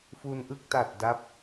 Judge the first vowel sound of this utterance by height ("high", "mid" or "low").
high